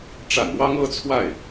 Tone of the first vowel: low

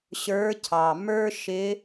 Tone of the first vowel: rising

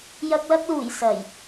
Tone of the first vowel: low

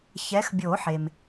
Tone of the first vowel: rising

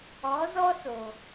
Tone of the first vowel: rising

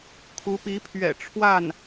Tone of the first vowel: rising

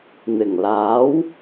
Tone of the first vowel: low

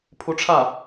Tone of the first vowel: rising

